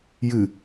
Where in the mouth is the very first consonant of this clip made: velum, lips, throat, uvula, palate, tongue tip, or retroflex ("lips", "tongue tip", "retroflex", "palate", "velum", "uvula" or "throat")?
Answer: palate